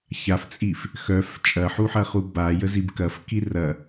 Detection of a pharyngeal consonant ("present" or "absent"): present